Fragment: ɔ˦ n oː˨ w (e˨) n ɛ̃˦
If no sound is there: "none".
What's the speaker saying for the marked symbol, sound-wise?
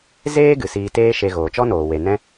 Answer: e˨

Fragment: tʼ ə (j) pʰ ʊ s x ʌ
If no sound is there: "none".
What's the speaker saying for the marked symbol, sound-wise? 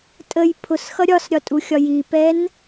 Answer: j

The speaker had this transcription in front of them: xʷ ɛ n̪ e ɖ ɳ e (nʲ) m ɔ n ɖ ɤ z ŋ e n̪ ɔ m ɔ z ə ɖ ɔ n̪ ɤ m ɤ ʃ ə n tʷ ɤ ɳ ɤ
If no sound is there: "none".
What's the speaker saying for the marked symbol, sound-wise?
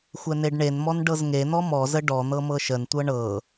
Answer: n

